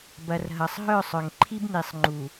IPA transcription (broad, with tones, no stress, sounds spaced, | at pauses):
b ɐ˨ r ɦ ɐ˨ sˤ ɦ œ˦˨ sˤ œ˨ ŋ ǃʰ i˦ b n i˨ sˤ ŋ͡ǃ u˨